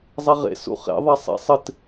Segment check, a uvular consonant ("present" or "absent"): present